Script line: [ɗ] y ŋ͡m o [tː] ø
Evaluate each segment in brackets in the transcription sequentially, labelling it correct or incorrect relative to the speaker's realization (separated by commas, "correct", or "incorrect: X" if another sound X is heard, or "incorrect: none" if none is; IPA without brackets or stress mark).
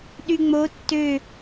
correct, correct